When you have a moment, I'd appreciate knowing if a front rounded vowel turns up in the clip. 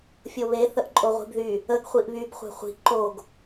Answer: yes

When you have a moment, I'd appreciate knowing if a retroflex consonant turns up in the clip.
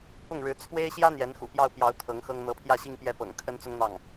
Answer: yes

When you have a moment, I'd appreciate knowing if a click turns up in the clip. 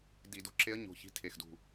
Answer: yes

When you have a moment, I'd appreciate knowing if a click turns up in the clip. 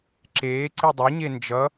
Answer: yes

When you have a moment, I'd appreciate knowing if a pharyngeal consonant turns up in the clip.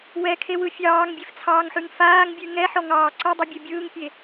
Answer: yes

